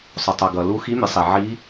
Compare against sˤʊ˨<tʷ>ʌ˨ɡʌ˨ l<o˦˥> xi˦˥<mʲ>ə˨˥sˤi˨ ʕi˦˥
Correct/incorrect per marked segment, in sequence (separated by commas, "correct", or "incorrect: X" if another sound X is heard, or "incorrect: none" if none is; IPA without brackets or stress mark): incorrect: tˤ, incorrect: u˦˥, correct